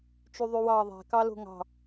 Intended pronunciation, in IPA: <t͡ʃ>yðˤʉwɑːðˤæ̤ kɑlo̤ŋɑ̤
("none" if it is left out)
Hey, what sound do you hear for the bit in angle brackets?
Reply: t͡ʃ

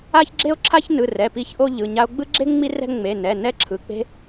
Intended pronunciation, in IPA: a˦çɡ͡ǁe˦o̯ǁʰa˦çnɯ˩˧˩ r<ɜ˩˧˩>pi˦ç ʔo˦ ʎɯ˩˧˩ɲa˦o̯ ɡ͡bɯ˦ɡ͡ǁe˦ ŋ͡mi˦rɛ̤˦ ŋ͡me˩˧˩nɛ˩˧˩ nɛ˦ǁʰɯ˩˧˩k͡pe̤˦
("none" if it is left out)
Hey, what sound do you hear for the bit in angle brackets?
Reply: ɛ˩˧˩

